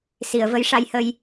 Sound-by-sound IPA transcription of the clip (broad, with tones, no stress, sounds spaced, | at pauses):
s i˨˩˨ ə̯ v ə˧˥ j ʂ a˧ j h ə˧ j